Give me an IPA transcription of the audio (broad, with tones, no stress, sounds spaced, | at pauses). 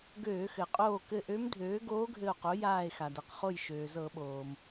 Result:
ɡ øː˧˩˧ x ɘ˩ qʼ oː˧˩ k ɘ˧˩ ʔ ø˧˥ m dʱ øː˩˥ ɡ oː˧˥ ɡʱ ɘ˧˩ o̯ q o˩˥ j aː˧˩ e̯ x a˩ d ɤ˩ q χ o˧˩ j ʃ øː˩ z ɤ˧˩˧ ɓ oː˩ m